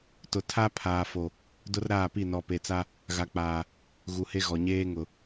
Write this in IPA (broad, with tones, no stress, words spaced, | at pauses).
tʊ˨ tʰa˦ pʰaː˨fo˨ | dʊ˦rɾaː˦˨pi˦˨ nɔ˨pe˨t͡sa˦ | ɣa˨k͡paː˨ | ɣu˨he˦ɣɔ˨ ɲeː˦ ŋʊ˨